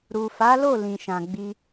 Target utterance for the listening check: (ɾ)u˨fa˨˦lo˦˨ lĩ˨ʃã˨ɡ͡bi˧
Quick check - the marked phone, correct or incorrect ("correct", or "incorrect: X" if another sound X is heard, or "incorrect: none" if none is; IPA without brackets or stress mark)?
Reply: correct